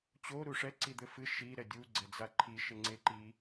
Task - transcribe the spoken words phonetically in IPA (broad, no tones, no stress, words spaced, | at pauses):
t͡ɕo ɾuʂɛ ǀid̪ɘfɨ ʃi ɾɛdʲu ɡ͡ǀɛd͡zaǃʰi ʃeŋ͡ǀeǃi